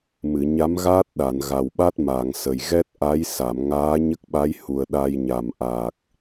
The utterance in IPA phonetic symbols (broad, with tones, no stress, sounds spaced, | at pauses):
m ɨ˨˩˨ ɲ a˧˥ m ɣ aː˦˥ t̚ ɗ a˨˩˨ n ɣ a˨˩ w ɓ a˦˥ t̚ m aː˨˩˨ ŋ s ə˨˩ j ɣ ɛ˦˥ t̚ ʔ a˧˥ j s a˨˩˨ m ŋ aː˧˥ ɲ ə˦˥ k̚ ɓ a˧˥ j h u˨˩ ə̯ ɗ a˧ j ɲ a˨˩ m ʔ a˨˩ k̚